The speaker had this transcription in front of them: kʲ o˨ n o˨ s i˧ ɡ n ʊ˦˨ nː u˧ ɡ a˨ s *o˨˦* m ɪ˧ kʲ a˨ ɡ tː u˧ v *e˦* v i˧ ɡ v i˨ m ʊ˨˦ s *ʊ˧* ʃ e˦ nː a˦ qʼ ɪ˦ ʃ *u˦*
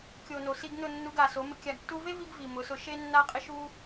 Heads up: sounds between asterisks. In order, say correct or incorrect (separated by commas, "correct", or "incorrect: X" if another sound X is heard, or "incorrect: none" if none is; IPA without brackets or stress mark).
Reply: correct, correct, correct, correct